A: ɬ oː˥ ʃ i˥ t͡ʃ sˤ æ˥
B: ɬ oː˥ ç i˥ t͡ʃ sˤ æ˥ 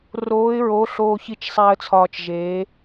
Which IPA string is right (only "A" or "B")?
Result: B